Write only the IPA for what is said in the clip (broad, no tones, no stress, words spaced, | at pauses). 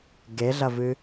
ɡeɮɐvɨ